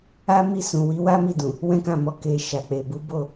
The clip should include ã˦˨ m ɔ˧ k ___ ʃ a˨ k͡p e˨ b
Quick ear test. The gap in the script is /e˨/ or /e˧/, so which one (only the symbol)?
e˨